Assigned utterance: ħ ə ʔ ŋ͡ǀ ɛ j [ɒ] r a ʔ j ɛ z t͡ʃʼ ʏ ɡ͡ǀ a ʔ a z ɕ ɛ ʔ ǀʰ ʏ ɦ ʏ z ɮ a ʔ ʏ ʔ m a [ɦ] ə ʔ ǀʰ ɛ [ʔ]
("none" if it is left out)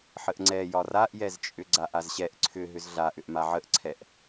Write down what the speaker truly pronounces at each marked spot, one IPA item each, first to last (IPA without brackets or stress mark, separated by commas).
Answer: ɒ, ʕ, ʔ